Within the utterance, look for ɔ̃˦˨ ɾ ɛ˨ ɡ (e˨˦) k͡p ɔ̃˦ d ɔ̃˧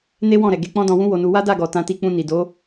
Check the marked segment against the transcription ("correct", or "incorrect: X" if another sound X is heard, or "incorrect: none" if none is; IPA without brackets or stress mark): correct